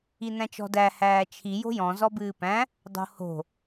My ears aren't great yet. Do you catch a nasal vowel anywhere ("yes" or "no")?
yes